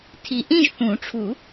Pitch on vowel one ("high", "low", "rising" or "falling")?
low